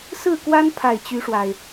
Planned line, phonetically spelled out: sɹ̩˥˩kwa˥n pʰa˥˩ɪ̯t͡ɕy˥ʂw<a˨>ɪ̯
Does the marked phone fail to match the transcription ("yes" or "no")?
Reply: no